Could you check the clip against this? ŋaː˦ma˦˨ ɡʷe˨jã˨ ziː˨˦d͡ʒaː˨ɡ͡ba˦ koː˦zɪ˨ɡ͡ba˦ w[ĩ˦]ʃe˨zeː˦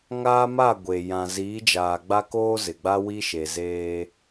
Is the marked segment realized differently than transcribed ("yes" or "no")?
yes